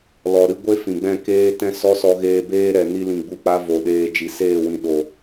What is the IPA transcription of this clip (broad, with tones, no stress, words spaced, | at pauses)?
lɔ˨ɾɨ˦ɡʷe˦ fĩ˨ɡ͡bɛ̃˦˨keː˦ tɛ̃˦sɔ˦sɔ˧ɣeː˧ beː˦ɾɛ˨ ni˧lĩ˨ɡ͡bu˧k͡pa˧ vo˨ɗeː˧ d͡ʒi˨seː˦˨wĩ˨ ɗo˨